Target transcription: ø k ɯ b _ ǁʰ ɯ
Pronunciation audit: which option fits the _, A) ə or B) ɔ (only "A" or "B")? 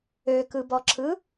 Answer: B